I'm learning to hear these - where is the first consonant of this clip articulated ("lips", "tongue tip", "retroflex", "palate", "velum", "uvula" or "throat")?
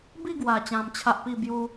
lips